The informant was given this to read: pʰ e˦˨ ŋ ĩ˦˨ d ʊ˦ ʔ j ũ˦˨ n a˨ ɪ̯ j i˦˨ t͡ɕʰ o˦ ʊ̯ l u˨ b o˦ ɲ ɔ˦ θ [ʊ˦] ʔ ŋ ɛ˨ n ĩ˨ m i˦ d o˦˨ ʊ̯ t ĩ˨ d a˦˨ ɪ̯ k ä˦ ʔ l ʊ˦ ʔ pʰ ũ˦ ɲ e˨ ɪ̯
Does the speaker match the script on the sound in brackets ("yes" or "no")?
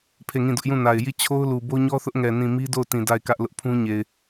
yes